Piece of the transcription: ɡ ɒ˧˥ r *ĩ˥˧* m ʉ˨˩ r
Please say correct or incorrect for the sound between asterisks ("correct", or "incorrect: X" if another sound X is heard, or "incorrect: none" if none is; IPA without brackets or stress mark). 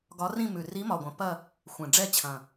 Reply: correct